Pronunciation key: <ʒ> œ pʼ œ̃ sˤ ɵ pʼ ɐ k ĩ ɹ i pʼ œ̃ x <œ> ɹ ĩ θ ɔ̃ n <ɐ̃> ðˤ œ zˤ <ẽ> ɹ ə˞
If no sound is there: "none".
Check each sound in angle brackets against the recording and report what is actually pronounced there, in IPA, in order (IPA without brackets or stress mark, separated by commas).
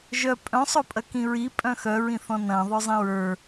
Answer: ʒ, œ, ɐ̃, ĩ